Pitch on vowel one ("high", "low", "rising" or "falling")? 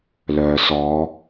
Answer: low